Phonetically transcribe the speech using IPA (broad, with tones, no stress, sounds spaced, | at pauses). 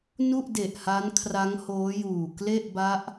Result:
n u˥˩ ʔ d e˨˩ ʔ h a˦˥ n kʰ r a˦˥ ŋ h oː˦˥ j uː˨˩ k l e˥˩ ʔ b a˦˥ ʔ